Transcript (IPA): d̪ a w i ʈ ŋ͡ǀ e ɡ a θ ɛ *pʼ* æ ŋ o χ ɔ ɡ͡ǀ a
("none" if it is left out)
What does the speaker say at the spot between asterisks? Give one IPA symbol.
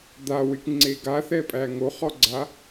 pʼ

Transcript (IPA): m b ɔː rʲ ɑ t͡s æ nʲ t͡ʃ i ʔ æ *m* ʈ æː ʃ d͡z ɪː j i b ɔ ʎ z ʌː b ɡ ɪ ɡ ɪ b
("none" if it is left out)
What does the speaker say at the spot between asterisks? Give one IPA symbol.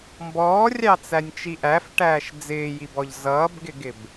f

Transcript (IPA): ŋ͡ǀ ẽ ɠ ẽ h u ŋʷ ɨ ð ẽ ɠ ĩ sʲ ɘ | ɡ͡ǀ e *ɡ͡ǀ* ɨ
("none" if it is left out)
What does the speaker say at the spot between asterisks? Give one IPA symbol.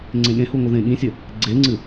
ŋ͡ǀ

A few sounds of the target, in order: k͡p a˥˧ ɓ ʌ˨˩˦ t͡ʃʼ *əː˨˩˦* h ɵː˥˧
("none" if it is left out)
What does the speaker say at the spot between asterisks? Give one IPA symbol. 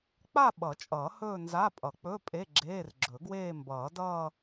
ʌː˨˩˦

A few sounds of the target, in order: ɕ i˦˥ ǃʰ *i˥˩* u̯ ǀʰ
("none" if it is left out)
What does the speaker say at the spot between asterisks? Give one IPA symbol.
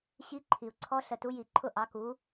i˩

